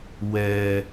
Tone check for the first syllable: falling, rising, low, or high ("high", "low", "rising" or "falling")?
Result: low